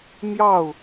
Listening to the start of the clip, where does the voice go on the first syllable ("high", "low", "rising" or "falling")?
falling